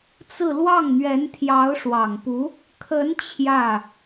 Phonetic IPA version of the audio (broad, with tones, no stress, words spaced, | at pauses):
t͡sɹ̩˥˧ lwɑ˥˩ŋn̪ɥɛ˧˥nt̪ʰjɑ˧˥ʊ̯ ʂwɑ˨˩ŋpu˧˥ | kʰə˧˥n t͡ɕʰjä˥˩